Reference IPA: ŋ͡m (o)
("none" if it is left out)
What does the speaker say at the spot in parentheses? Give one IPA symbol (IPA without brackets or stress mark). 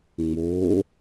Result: o